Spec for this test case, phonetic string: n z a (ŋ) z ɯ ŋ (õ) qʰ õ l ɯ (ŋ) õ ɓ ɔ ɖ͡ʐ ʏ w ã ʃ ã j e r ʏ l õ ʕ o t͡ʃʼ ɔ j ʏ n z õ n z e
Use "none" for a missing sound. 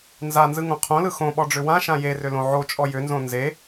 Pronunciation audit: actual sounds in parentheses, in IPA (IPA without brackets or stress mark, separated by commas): n, õ, x